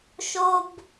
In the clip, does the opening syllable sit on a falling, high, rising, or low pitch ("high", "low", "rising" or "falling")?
high